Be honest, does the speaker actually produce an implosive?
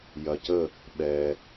yes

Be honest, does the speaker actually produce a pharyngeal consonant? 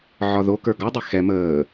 yes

